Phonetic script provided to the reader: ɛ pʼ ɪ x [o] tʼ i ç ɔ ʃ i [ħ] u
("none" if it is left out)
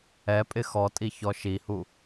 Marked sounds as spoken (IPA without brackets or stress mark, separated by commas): ɔ, h